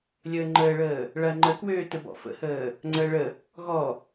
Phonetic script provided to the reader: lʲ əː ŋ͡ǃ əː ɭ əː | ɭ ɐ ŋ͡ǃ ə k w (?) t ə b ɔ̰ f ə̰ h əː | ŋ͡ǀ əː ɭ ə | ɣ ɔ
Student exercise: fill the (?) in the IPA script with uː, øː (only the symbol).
øː